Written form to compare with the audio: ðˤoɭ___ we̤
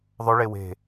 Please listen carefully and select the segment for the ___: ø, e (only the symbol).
e